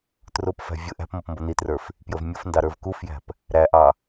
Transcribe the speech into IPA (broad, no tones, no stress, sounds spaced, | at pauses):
t r ʊ p f æ̤ vʲ ʊ ʔ æ̤ p m ʌ p m b ʌ n i t r ə˞ f | p j ə v mʲ ʊ f n d ɑ ɾ ə˞ v k u f j æ̤ p | ɾ æ ʔ ɑ